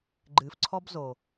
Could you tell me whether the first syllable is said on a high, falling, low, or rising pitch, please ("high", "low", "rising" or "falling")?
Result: low